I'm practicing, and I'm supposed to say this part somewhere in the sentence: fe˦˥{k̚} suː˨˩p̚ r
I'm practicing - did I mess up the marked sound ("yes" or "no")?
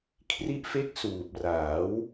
no